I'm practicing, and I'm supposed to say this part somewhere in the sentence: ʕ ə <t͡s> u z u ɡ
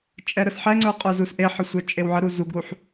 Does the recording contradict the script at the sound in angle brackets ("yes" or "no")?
yes